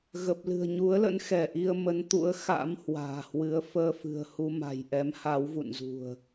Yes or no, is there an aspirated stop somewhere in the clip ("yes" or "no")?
no